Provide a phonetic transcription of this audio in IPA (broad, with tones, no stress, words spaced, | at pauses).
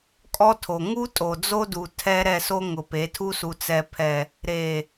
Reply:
kʼɔ˦tʰo˨ ŋu˦tʼo˨d͡zo˦du˨ tʰɛ˦ ɾɛ˦˨so˦ ŋʊ˨pe˨˦ tʰu˦su˨ t͡sɛ˨pʰɛ˨ | ɾe˨